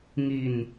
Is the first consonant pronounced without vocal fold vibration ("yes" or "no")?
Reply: no